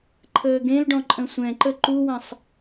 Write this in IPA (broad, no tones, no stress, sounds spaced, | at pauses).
ǃʰ əː ɡ ẽ l ɖ ɔ̃ ǃʼ ə̃ sʷ ɛ̃ ǃ ə ǃ u w ɐ̃ sˤ